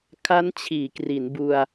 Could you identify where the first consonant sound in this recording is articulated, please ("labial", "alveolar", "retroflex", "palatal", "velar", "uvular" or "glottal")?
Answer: velar